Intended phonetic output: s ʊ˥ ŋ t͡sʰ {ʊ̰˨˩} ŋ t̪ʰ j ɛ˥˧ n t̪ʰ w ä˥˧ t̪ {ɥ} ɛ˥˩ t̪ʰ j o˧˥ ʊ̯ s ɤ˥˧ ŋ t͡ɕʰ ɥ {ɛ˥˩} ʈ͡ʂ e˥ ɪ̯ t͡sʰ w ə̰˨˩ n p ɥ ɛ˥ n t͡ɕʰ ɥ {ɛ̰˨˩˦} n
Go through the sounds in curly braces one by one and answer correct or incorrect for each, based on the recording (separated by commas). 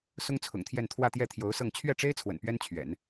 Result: correct, incorrect, correct, correct